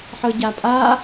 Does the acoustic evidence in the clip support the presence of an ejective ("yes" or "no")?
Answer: yes